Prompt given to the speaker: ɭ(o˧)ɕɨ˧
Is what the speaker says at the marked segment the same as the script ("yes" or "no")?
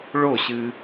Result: no